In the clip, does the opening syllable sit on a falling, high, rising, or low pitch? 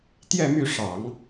falling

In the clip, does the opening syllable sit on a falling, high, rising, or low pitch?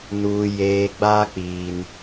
low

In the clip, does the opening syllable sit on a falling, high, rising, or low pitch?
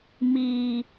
low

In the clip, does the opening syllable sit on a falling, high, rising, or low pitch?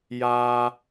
low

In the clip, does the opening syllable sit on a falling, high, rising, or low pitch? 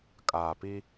low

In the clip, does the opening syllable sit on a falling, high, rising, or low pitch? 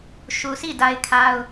low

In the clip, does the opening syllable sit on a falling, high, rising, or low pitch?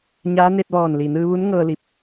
rising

